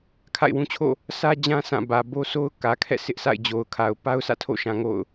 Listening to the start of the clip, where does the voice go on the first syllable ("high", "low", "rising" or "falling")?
falling